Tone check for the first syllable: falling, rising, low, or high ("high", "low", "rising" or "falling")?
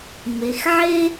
low